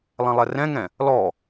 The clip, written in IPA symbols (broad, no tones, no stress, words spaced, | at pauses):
lˠɛ̃lˠɛrɛ̃ŋɛ̃ | lɔ